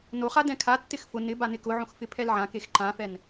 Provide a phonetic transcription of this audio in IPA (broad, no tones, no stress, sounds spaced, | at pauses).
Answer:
n o χ a d ɛ̃ kʰ a tː ɪ x f ʊ n ɪ b a n ɪ k ʊ ʕ õ x f ɪ pʰ ɛ l ʕ ã k e x ǃ ã f ɛ n